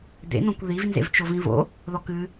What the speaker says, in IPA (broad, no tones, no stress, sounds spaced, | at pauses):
d̪ ḛ n̪ õ kʷ ð i v n z ḛ v t͡ʃ o v ĩ v o̰ | ð ɔ k ɨ